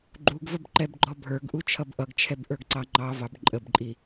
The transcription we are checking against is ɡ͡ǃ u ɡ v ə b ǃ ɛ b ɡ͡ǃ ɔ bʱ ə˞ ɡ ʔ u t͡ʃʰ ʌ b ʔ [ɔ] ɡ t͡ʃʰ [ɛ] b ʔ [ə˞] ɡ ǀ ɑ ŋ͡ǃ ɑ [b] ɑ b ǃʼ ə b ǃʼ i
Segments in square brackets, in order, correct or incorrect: incorrect: ʌ, correct, correct, incorrect: v

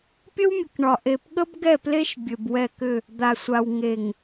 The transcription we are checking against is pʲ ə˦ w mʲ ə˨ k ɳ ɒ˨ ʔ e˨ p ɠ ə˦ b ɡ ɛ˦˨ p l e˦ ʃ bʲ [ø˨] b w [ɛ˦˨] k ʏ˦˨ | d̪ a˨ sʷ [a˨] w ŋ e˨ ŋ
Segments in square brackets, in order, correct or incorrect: incorrect: ɘ˨, correct, correct

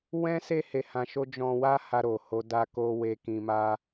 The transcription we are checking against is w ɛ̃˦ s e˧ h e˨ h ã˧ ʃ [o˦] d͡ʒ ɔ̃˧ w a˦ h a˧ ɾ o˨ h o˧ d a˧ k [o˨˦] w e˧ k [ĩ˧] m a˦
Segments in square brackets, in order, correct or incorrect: correct, incorrect: o˧, correct

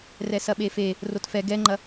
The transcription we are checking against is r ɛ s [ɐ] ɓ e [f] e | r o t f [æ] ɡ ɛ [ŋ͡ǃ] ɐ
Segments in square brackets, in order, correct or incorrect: correct, correct, incorrect: ɛ, correct

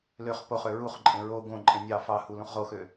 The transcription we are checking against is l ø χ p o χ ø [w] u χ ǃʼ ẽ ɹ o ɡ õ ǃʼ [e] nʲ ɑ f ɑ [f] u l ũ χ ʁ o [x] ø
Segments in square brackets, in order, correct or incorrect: incorrect: ɹ, incorrect: ẽ, incorrect: h, correct

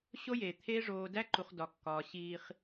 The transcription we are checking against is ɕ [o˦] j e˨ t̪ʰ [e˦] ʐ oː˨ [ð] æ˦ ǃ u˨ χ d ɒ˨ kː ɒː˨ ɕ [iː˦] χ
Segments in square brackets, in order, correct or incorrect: correct, correct, incorrect: d, correct

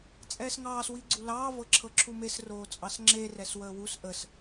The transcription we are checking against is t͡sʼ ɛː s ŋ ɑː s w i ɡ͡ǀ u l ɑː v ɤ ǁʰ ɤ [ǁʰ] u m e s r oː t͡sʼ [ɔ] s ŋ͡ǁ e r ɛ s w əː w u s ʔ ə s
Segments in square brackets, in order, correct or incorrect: correct, incorrect: ɑ

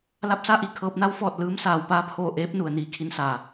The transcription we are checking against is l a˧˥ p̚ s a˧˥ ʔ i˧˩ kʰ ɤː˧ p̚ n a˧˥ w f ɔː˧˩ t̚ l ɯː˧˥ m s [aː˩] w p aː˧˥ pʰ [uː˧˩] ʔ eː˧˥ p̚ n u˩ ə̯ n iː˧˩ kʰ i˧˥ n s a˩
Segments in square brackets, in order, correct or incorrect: correct, incorrect: oː˧˩

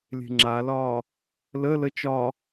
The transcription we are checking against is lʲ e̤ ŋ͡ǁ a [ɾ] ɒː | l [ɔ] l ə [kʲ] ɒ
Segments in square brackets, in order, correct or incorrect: incorrect: l, incorrect: ə, incorrect: t͡ʃ

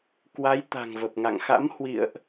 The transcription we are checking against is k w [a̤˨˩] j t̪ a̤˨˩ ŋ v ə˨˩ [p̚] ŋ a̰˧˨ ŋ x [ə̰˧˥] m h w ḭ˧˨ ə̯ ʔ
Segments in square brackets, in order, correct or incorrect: incorrect: a˨˦, correct, incorrect: a̰˧˥

